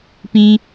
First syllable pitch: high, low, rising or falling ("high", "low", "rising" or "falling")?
high